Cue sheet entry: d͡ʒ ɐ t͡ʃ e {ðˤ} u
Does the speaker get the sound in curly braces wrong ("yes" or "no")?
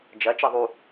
no